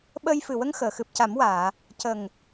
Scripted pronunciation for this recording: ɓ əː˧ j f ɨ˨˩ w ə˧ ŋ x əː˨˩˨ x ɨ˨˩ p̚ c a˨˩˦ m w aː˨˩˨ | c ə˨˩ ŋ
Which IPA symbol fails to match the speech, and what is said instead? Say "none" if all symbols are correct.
none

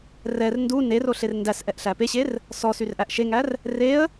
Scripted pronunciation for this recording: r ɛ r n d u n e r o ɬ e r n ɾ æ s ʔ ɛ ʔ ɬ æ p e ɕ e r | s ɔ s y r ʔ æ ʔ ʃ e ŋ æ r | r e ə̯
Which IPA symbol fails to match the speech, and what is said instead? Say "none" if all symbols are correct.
ɾ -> d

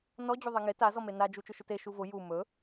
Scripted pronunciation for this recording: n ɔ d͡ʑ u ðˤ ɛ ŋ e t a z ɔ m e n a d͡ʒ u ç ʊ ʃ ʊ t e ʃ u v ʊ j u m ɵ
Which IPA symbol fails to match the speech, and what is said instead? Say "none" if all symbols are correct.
ç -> t͡ʃ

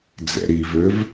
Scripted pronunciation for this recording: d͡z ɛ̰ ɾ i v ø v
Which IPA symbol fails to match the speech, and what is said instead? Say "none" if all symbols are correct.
none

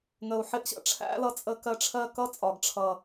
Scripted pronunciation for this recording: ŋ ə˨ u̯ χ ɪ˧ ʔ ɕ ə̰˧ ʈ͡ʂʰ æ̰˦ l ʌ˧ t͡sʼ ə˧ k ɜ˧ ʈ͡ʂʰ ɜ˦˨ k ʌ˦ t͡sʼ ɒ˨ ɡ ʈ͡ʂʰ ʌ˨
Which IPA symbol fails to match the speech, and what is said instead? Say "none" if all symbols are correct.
χ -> ħ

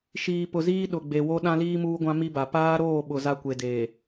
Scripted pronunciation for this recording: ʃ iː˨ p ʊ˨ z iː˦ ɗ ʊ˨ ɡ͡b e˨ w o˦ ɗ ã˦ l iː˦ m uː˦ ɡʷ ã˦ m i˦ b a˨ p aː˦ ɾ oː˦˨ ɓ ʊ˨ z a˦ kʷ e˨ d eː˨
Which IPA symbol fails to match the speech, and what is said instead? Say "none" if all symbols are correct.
none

